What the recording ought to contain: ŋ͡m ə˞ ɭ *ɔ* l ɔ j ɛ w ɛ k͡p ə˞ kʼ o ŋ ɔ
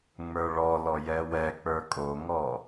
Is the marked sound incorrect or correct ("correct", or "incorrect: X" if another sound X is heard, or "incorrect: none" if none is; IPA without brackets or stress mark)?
correct